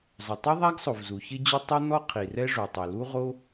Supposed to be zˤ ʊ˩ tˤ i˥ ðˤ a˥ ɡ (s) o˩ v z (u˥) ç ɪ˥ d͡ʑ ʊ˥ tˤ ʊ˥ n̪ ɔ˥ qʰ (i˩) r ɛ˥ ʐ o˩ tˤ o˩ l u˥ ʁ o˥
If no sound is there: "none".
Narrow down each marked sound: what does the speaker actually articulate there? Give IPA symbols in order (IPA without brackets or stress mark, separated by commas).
sˤ, u˩, i˩